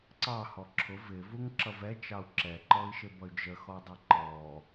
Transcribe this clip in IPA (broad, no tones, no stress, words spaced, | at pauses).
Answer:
ǀɑhɔ ǁʰʊv ɪvuŋǁʌv ɛt͡ʃɑu̯ ǁɛǃɔi̯ʃɪbʌy̯ d͡ʒəxɔdˤɛ ǃɔ